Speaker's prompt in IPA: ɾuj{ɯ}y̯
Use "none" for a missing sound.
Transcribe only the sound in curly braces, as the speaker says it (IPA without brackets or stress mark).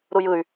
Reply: ɯ